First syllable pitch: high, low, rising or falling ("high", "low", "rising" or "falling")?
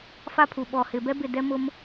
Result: high